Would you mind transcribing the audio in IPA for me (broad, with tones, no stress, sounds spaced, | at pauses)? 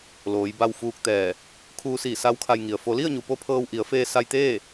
l oː˩˧ j b a˧ w f uː˧ k̚ t̪ ɛː˧˩ | kʰ uː˧ s iː˧˩ s a˧˥ w kʰ a˧ j ŋ i˩ ə̯ f o˩˧ l i˥˨ ə̯ ɲ u˩ p o˧ pʰ ɤː˧ w ʔ i˩˧ ə̯ f eː˧ s a˧ j t̪ eː˥˨